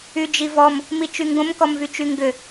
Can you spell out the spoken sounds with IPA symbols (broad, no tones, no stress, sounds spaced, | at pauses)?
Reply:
y d͡ʒ i v ɔ m | m i t͡ʃ y ŋ ɡ õ m k ɔ m v y t͡ʃ y ŋ ɡ ʏ